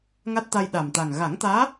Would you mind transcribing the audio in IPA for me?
ŋ a˦˥ t̚ t̪ a˧ j ɗ a˨˩ m t̪ a˨˩ ŋ ɣ a˨˩˦ ŋ t̪ aː˧˥

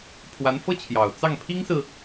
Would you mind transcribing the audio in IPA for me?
pʰ w a˧˥ n f ɤ˥ t͡ɕʰ j ɑ˨˩ ʊ̯ t͡s ɑ˥˩ ŋ pʰ i˥ ŋ s ɹ̩˨

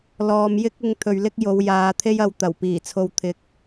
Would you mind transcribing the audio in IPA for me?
l ɔː˨ m j ɪ˥ k̚ ɪ˧ ŋ t̪ʰ ɵ˨ ɥ l ɪ˥ k̚ j o˨˧ w j aː˨˧ t̪ʰ e˥ j ɐ˧ w t̪ ɐ˨˩ w p iː˨˩ t͡sʰ o˨ w t̪ʰ ɪ˨˥ k̚

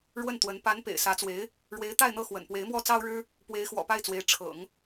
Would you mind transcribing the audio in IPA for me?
ɻ w ə˥˩ n t̪ w ə˧˥ n p a˧˥ n p ḛ˨˩ ɪ̯ s ä˧˥ t͡s w e˧˥ ɪ̯ | ɻ w e˧˥ ɪ̯ t̪ a˥˧ ɪ̯ n̪ ɤ˥˩ x w ə̰˨˩ n p w e˧˥ ɪ̯ m w ɔ˥ t͡s ɑ˥ ʊ̯ ɻ ɻ̩˥ | p w e˧˥ ɪ̯ x w ɔ̰˨˩ p a˥˩ ɪ̯ t͡s w e˧˥ ɪ̯ ʈ͡ʂʰ ɤ̰˨˩˦ ŋ

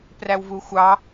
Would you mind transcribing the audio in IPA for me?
p r æ w v u xʷ ɑ

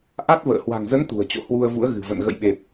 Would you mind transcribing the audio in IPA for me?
ʔ a˦˥ t̚ v ə̰ː˧˨ h w a̤˨˩ ŋ z ə˨˦ n t̪ ṳ˨˩ ə̯ t͡ɕ o̰˧˨ h w u˧ ə̯ v ṵ˧˥ ə̯ ɣ ɨ̤˨˩ v ə̰˧˨ n ɣ ə̰˧˨ j ɓ e˨˩ p̚

